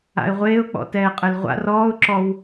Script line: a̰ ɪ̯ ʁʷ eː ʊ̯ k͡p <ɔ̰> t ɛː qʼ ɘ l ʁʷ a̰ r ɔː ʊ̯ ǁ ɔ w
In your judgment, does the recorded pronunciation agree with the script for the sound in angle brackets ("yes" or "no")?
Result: yes